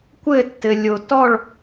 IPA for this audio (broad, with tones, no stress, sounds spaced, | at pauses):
kʷ ɘ˥˨ tː ɘ˩ lʲ o˩ t ɔ˥˨ ɭ